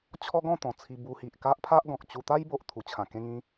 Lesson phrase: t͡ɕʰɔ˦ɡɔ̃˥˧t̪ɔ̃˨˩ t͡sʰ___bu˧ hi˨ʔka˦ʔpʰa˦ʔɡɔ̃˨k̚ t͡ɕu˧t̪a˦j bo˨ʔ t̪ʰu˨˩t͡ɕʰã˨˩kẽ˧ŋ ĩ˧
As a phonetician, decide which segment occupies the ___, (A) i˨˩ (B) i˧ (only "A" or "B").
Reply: B